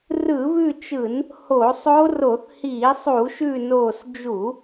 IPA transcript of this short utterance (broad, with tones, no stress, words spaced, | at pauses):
rɯ˧˩˧βʉ˦˨t͡ʃɯ˧˩˧n | ho˧˩˧sˤo˦˥ ro˧˩˧θhiː˧˩˧sˤu˧˩˧ʃʉ˦˨ noː˦˨s d͡ʒu˧˩˧